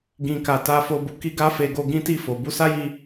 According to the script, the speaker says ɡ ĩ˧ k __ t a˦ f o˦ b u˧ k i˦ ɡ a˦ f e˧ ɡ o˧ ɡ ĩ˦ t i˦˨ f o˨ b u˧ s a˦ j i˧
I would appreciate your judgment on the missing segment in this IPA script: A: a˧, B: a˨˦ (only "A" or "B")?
A